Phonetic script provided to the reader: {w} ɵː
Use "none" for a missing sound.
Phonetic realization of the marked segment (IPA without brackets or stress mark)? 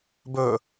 b